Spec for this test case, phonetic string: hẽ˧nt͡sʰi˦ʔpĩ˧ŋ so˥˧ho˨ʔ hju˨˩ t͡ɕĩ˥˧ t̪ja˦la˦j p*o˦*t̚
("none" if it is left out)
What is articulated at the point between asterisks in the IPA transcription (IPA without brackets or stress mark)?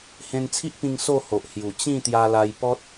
ɔ˦